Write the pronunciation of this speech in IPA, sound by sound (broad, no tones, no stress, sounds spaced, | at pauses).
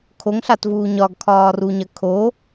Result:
kʰ o ŋ ɬ a t v uː ɲ ɒ ɡ kʰ ɒː r u ɲ ɐ kʰ o